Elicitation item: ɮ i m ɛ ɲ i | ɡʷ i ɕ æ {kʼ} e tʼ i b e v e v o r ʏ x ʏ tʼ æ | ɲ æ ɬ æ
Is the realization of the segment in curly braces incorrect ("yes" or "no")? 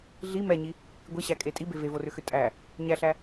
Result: no